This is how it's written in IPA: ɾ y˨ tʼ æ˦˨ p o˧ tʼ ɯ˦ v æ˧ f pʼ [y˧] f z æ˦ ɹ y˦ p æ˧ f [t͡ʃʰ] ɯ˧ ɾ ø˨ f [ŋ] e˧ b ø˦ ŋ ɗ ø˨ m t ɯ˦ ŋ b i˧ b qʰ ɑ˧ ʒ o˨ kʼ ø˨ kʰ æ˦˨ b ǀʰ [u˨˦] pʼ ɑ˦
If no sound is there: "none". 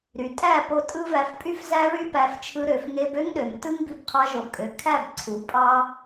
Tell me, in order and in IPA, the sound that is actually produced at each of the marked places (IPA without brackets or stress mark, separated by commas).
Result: y˦, t͡ʃʰ, ŋ, u˨˦